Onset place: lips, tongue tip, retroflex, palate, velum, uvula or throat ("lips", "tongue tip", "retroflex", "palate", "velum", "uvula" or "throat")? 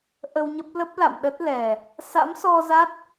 throat